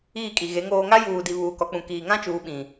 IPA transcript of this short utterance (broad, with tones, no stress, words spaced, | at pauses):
iː˦˨kʼi˨ɣe˨˦ ŋoː˦ ŋa˦juː˨di˨ βuː˨kɔ˨k͡pũ˨ kiː˨ŋã˦t͡ʃuː˨ ɓĩ˨